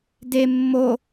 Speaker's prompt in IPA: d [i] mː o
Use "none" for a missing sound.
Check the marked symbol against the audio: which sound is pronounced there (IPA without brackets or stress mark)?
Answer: e